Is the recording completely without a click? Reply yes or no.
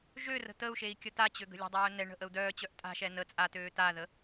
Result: yes